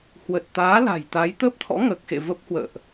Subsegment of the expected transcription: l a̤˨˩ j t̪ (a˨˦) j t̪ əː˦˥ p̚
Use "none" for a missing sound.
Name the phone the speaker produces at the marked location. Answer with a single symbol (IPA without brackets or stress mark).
a˨˦